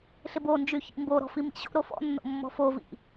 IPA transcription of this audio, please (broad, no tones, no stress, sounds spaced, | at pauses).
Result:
ɬ ɪ b o n d͡ʒ y ç ḭ m b o ɾ ɔ̤ f i m ḭ ɕ o̰ ɾ o f ɔ̰ nː o̰ mː ɔ̤ f o v ḭ